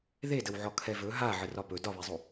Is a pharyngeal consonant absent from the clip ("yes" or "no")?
no